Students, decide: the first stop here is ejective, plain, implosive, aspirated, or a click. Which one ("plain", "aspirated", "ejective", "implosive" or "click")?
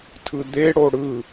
aspirated